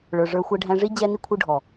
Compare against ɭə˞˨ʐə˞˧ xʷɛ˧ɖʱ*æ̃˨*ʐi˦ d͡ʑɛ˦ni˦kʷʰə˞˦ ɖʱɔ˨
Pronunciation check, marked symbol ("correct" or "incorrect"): incorrect